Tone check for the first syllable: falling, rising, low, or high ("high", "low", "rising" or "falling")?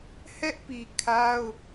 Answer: high